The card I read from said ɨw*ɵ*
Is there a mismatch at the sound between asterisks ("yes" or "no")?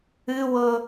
yes